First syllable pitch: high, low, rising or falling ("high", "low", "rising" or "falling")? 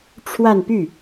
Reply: falling